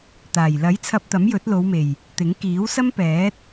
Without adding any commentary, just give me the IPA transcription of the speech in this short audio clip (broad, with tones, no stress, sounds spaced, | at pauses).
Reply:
t̪ aː˨˩ j l ɐ˨˥ j t͡sʰ ɐ˧ p̚ t̪ ɐ˨˥ m j ɵ˨˥ t̚ l o˨˧ w m e˨˩ j | t̪ ɪ˨˥ ŋ k iː˨˥ w s ɐ˥ m p ɛː˨˥ t̚